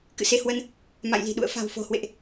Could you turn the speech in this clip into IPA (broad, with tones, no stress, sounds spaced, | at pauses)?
k ɨ̰˧˨ s e˧ h w ə˧ n | m a̰˧˨ j l i̤˨˩ ɗ ṵ˧˨ ə̯ f a̤˨˩ w f o̤˨˩ h w ḛ˧˨ ʔ